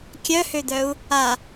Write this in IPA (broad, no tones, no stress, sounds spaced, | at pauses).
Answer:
kʲ œ h ø d̪ œ u̯ | a